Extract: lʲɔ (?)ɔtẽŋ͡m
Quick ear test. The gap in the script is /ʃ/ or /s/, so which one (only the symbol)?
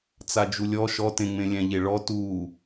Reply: ʃ